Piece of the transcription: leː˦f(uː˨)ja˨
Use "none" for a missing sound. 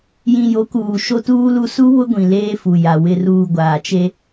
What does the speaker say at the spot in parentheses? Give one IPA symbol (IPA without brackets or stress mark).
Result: u˨